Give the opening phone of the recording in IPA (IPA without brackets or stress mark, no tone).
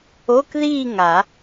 o